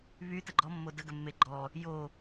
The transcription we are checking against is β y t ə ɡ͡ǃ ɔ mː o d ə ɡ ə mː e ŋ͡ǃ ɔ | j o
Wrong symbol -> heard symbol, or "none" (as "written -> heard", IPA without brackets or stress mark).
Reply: ŋ͡ǃ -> ɡ͡ǃ